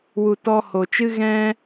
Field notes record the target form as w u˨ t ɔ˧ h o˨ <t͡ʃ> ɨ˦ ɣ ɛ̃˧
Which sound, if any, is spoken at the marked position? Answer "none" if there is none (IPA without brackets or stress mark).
t͡ʃ